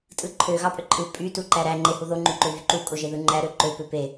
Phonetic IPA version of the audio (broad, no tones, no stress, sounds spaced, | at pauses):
tʼ ɯ ǃʰ ø ɣ ɑ pʼ ø ǃʼ ɯ pʼ y t u ǃ æ ɾ æ ŋ͡ǃ e h u ð o ŋ͡ǃ y ǃ ø v y ǃ u kʼ o ʒ e ð ɯ ŋ͡ǃ æ ɾ ø ǃ ø p ø p e